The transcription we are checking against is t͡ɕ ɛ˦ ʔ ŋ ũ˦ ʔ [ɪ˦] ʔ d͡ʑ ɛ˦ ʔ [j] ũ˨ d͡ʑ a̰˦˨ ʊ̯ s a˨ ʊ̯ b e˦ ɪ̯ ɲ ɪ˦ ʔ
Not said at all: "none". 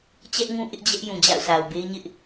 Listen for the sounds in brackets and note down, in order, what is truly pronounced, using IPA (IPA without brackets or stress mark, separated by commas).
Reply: ɪ˦, j